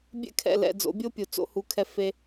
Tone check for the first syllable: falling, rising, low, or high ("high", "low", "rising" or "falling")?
high